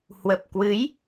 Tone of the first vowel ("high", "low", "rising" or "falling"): low